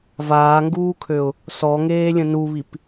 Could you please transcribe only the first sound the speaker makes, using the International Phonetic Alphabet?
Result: v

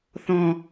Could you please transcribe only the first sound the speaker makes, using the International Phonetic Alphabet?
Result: θ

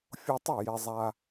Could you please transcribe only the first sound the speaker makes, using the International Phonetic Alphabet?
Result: fʲ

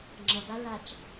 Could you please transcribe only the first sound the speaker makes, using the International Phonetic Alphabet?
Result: ŋ͡ǁ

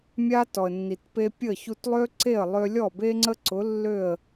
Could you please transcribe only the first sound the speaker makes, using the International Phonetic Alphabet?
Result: mʲ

